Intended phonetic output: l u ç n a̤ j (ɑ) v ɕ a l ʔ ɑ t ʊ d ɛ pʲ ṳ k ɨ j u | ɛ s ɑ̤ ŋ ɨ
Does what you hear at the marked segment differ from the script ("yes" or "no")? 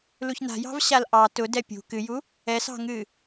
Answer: yes